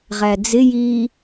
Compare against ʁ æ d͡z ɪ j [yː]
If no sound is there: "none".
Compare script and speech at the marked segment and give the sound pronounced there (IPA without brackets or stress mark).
iː